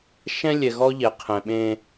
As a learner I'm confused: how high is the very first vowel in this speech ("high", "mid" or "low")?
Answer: mid